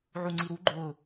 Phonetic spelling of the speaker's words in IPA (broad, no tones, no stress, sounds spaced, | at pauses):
ʕ u ŋ͡ǀ i ɾ u ɡ͡ǃ ʊː